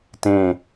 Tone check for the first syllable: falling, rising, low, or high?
low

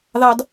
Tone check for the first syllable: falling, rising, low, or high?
high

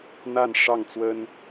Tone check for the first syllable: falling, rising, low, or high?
falling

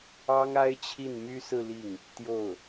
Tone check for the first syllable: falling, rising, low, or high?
high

